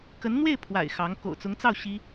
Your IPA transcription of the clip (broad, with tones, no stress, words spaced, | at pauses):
kə˧˥nn̪we˥˩ɪ̯pʰwa̰˨˩ɪ̯ xɑ˧˥ŋ ko̰˨˩ʊ̯t͡sʊ˧˥ŋt͡sɑ˥˩ʊ̯ ɕi˥